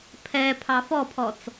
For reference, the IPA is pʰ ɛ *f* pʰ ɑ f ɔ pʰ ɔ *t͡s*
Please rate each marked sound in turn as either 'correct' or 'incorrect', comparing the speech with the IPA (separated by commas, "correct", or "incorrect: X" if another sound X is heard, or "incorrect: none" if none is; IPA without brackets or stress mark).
incorrect: none, correct